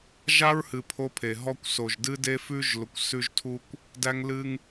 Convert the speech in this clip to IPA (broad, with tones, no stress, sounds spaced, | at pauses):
ʒ a˦ ɹ h ɨ˨ pʰ o˦ pʰ e˨ ɦ ɔ˦ kʷ s o˨ ʒ d ɨ˦ d e˦ f ʉ˦ ʒ l ʊ˨ kʷ s ʉ˦ ʒ tʰ u˦ kʷ | d æ˦ ŋ l ɨ˦ ŋ